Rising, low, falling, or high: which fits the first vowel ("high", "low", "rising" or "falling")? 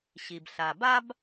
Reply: low